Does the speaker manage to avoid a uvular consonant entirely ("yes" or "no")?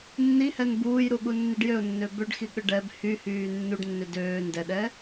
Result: yes